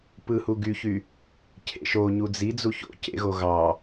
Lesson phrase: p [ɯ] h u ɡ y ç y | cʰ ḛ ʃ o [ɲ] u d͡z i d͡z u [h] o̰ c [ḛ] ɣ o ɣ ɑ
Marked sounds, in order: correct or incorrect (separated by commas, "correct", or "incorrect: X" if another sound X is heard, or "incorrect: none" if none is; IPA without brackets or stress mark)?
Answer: correct, correct, incorrect: ç, correct